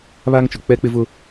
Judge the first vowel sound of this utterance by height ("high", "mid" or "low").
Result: low